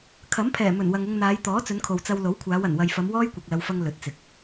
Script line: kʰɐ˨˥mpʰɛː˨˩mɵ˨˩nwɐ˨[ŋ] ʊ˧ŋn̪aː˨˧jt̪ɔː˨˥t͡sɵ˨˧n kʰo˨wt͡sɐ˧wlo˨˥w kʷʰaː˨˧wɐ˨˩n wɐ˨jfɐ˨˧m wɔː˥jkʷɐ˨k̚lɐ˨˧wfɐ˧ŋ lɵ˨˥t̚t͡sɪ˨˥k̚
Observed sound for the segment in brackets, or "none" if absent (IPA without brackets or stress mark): ŋ